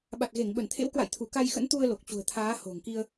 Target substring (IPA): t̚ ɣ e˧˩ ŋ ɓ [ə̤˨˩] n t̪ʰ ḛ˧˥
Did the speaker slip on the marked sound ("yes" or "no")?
yes